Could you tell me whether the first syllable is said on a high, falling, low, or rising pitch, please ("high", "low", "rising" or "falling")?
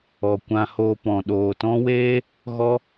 low